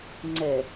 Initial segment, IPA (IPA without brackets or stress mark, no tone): ŋ͡ǀ